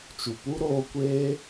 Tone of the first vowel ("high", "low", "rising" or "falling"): low